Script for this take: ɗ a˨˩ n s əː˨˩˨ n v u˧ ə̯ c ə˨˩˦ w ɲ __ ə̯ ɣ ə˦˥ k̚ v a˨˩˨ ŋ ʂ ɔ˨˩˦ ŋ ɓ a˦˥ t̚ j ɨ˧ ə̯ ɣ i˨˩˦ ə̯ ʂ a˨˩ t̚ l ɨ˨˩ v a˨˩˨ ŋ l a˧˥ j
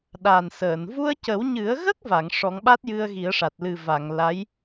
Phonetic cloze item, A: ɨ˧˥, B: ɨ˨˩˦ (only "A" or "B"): B